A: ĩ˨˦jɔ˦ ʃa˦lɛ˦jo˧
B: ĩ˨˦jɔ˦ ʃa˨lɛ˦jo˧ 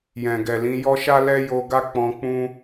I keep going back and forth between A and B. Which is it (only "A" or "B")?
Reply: A